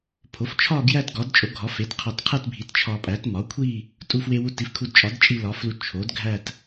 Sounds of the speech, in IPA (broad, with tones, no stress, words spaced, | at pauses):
pʰo˩˥ft͡ʃʰɒ˥˧ɡjæ˥˧t ɡɒ˩˥dt͡ʃʼo˩˥ɡʱɒ˩˥ fe˩˥tqʰɒ˧tqʰæ˥˧t bʱi˩˥tt͡ʃʰɒ˧pʼæ˩˥t mɒ˩˥kʷʰi˥˧ | tʼu˧fwe˧wu˧ ti˩˥fkʰu˧dt͡ʃʼɒ˩˥d t͡ʃʼi˧lɒ˩˥flu˧ t͡ʃʰo˩˥dɡʱæ˥˧t